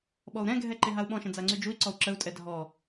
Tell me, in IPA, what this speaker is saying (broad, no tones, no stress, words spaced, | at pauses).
ɓɔu̯ɾɛ̃ɡʱɛ ǃeɦau̯ɓɔ̃ʃə̃ d͡zaŋ͡ǀyd͡ʒui̯ǀɔu̯ ǁəu̯tʼɛ dʱɔ